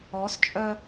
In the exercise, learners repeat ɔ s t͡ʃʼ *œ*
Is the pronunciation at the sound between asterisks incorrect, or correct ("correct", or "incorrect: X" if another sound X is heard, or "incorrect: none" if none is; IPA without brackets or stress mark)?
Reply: correct